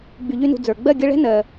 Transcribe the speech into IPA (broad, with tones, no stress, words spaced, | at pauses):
ɡ͡by˧ʎy˥nṳ˧ d͡zə˞˨˩ ɡ͡bɜ˥˨ɡʲə˧˥˧ ɭɛ̤˥nɜ˨˩